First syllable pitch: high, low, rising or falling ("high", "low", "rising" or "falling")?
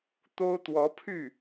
high